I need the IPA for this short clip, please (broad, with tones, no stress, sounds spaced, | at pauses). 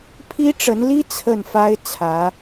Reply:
pʰ i˥ ʈ͡ʂ ə˧˥ n l i˥ t͡sʰ ə˥˩ n f a˥ ɪ̯ t͡sʰ ä˧˥